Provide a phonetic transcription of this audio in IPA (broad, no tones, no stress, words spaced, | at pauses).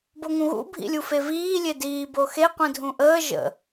boŋũɣṵ bʱḭlʲufeviː lʲediː boxe qʷĩdʱũʔəː ʒə̰